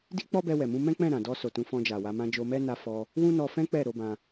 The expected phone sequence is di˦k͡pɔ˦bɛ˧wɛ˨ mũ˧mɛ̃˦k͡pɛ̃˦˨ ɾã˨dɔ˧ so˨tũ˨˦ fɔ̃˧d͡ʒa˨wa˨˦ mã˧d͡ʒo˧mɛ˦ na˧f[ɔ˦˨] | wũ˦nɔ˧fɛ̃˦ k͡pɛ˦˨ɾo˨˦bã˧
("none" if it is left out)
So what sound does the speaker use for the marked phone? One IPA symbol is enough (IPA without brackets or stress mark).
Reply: ɔ˧